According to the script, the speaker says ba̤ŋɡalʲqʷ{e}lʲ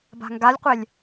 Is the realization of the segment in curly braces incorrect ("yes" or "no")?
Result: no